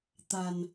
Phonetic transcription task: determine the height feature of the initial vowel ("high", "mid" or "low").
low